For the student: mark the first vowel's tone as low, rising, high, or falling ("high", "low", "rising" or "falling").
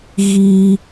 high